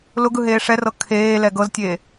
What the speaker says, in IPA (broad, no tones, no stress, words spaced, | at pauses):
lʊɡ ɯɦeːʂɛrɤ kʰeːlɛ ɡɤztʲeː